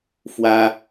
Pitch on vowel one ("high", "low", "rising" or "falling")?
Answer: high